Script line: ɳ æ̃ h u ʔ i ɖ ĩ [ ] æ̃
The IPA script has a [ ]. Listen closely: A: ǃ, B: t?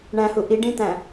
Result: B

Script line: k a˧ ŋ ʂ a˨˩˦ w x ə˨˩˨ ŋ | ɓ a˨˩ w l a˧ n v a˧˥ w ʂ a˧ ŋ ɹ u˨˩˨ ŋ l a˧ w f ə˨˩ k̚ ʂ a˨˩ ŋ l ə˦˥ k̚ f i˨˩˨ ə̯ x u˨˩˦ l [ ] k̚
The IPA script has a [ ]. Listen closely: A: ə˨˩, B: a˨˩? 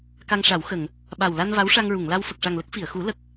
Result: A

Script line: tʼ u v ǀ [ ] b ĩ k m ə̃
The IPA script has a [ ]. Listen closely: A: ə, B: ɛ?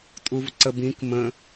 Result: A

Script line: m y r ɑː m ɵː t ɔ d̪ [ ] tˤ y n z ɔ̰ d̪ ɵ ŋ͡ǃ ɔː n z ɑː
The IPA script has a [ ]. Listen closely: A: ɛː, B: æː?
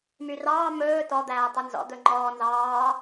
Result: B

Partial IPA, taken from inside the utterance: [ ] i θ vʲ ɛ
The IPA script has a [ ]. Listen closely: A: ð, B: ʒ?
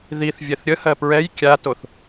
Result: A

